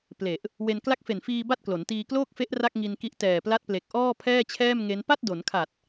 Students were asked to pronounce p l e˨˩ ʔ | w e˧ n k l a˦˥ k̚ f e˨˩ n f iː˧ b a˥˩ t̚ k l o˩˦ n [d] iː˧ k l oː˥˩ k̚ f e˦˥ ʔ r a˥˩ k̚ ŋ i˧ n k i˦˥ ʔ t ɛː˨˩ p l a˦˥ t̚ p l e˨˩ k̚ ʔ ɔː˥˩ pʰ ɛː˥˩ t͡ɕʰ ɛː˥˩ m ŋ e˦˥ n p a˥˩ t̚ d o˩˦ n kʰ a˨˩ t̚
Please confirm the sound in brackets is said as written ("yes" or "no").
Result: no